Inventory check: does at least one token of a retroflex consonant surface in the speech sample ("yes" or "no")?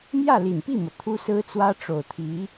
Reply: yes